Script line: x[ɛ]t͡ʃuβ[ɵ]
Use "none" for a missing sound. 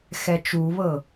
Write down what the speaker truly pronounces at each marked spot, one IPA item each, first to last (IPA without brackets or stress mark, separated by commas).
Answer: ɛ, ɤ